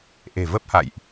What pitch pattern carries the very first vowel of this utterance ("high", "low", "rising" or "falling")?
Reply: low